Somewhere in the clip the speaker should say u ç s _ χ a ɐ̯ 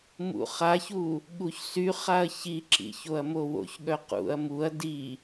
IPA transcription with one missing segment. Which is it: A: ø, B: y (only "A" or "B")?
B